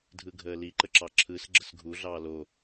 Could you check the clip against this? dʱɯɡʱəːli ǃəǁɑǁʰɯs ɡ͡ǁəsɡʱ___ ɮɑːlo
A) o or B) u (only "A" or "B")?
B